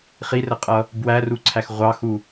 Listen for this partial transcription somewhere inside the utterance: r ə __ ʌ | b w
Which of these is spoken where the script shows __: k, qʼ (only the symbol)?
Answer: qʼ